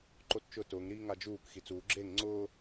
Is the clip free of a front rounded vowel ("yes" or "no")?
yes